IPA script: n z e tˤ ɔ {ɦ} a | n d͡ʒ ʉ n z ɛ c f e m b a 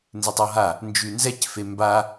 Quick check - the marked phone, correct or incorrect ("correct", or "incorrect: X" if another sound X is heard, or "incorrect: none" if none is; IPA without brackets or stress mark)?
correct